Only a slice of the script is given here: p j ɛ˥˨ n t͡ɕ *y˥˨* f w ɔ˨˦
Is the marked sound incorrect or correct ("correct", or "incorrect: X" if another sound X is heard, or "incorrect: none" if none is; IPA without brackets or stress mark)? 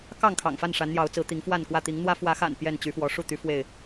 incorrect: y˨˦